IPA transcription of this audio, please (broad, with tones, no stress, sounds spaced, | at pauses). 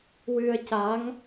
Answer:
w ɨ˧ ə̯ c a˧˥ ŋ